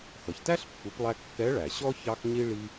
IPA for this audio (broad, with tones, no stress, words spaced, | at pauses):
xʌ˩çtæ˥ɬpːu˩˧plˠæ˧ kːɛ˧˥ɭæ˩ɕɔ˥ çɑ˥x ɲi˥ ɭi˥